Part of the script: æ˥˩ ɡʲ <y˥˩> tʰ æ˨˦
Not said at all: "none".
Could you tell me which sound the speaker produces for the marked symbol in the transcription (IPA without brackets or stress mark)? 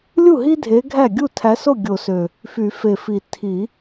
u˥˩